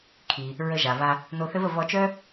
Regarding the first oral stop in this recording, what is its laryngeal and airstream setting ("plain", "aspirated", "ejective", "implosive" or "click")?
aspirated